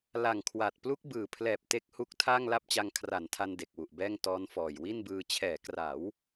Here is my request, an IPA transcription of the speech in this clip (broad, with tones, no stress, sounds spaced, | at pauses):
l a˨˩ ŋ kʰ w a˨˩ t̚ p l u˦˥ k̚ b ɯː˨˩ pʰ l ɛː˨˩ p̚ t e˦˥ k̚ h u˦˥ k̚ tʰ aː˥˩ ŋ l a˥˩ p̚ t͡ɕ a˧ ŋ kʰ r a˩˦ n tʰ a˧ n d e˨˩ k̚ w u˨˩ ʔ b ɛː˥˩ ŋ t ɔː˦˥ n f ɔː˨˩ j w i˥˩ n b ɯː˧ t͡ɕʰ ɛː˩˦ k r a˩˦ w